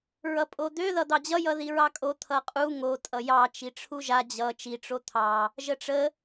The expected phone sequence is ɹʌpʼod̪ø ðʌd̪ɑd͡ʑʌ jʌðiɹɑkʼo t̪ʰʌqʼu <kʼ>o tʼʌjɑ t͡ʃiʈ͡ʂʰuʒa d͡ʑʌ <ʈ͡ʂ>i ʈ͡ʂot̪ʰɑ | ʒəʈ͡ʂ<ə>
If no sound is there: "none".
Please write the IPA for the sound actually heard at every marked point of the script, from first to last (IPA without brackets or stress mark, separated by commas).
ŋ, t͡ʃ, ə